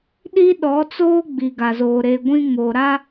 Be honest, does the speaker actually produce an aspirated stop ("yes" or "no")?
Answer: no